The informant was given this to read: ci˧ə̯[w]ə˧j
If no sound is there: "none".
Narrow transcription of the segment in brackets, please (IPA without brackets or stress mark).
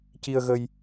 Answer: ɣ